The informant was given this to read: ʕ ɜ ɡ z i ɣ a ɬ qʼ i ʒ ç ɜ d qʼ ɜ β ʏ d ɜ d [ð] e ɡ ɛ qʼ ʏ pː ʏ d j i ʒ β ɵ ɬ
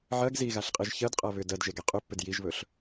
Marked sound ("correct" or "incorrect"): incorrect